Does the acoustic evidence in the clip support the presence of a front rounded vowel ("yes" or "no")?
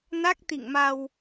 no